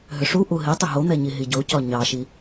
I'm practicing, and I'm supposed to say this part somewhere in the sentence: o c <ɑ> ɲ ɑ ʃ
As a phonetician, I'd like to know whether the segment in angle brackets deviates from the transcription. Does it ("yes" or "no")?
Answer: yes